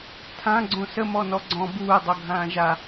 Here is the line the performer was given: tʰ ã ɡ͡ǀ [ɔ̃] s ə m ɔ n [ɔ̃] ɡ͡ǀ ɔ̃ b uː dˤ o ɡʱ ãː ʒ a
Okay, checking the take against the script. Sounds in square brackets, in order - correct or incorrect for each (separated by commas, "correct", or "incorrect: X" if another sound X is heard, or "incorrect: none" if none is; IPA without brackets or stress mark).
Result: incorrect: õ, incorrect: ɔ